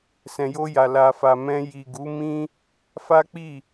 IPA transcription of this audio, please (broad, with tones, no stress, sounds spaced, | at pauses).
s ɛ̃˨ j o˧ j a˨ l a˨ f a˨ m ɛ̃˧ j i˨ ɡ u˨˦ m ĩ˦ | f a˦ k͡p i˦˨